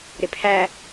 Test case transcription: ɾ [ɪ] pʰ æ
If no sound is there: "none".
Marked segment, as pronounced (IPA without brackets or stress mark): ɪ